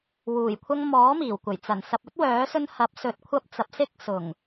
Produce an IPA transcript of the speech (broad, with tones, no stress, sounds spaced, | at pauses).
w uː˨˩ j kʷʰ ɐ˧ ŋ m ɔː˨˥ m iː˨˩ w kʷ ɐ˨˩ j t͡s ɐ˨˩ n s ɐ˨ p̚ ɵ˥ t̚ w œː˨˥ s ɵ˧ n h ɐ˨˥ p̚ s ɵ˨˥ t̚ kʷʰ ɐ˧ p̚ t͡s ɐ˨ p̚ s ɪ˥ k̚ s ʊ˨˩ ŋ